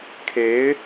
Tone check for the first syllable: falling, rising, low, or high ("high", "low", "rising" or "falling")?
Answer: rising